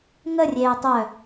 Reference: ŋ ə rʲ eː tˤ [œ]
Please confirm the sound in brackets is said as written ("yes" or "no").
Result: yes